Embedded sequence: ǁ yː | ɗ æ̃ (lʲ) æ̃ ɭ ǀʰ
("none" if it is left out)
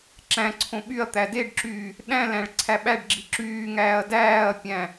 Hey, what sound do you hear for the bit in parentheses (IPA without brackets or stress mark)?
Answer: l